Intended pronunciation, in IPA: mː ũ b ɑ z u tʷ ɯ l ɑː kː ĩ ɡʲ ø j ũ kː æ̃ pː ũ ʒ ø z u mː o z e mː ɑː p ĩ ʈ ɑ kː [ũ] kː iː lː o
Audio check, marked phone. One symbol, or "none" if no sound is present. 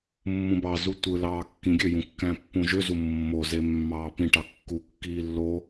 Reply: u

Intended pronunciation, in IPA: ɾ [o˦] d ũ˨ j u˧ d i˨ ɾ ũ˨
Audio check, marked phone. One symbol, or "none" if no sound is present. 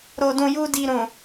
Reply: o˨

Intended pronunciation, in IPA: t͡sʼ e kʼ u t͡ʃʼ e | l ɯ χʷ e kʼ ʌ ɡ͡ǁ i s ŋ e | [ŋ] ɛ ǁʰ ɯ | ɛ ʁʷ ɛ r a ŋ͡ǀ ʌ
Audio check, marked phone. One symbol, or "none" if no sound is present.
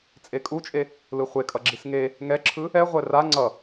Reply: ŋ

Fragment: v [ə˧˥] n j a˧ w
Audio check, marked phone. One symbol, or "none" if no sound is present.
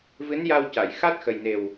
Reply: ɨ˧˥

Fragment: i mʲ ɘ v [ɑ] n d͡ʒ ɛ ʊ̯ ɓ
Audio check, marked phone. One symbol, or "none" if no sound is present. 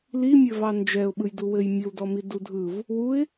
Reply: ɑ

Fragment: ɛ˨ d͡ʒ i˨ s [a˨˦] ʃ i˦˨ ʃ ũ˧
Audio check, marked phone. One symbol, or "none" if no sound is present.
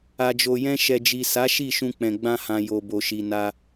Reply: a˨˦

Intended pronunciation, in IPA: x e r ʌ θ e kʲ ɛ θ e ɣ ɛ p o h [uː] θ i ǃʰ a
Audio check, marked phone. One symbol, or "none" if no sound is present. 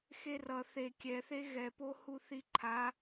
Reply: u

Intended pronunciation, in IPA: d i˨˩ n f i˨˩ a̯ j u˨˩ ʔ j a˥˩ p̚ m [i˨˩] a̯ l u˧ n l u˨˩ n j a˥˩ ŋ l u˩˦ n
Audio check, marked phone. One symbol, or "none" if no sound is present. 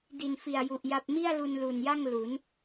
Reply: i˥˩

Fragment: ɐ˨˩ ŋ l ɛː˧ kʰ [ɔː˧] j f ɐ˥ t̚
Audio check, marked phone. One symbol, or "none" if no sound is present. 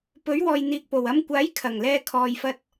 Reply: ɔː˧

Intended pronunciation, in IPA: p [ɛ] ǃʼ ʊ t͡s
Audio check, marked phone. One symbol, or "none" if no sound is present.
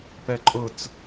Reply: ɛ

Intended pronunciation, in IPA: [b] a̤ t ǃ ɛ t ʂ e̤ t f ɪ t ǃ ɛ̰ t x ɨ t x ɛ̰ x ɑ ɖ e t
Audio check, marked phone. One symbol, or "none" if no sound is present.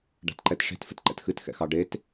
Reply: ɖ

